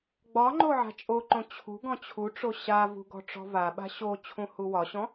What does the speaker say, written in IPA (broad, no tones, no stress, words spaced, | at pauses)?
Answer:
ɡ͡bɒŋ͡ǃo ʕa̤t͡ʃʼoǃõ t͡ɕʰṳ ɡɔ̃t͡ɕʰuʈ͡ʂo ɕavṳ ɡɔ̤ʈ͡ʂɔ̤vaɓa̤ ɕo t͡ɕʰũhuwɒɕɔ̃